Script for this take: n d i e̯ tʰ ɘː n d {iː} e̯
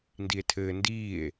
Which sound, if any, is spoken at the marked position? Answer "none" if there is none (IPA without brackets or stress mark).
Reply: iː